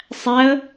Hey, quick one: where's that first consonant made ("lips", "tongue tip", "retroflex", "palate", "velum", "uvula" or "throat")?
tongue tip